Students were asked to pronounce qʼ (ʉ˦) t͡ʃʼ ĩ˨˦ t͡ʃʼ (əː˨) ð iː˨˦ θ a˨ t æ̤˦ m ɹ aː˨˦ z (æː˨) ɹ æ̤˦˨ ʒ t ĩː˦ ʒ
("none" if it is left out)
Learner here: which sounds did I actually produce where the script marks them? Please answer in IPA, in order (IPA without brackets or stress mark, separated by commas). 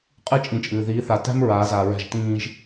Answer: ɨ˦, ɨː˨, aː˨